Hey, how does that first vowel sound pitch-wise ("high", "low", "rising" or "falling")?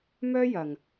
high